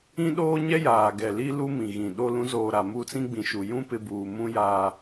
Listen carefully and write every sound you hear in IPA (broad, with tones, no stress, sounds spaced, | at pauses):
ĩ˦ ɗ oː˦ ɲ ɛ˦ j aː˨ ɡ ɛ˨ l i˦ l u˦ m ĩ˨ ɣ ĩ˨ ɗ o˦ l ũ˨˦ z oː˨ ɾ a˨ m u˦˨ t͡s ĩ˦ ɡ͡b ĩ˨ ʃ u˨ j ũ˦ p ɪ˦ b uː˨ m ũ˦ j aː˨